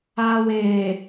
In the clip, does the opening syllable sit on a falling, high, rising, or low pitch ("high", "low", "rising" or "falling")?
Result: low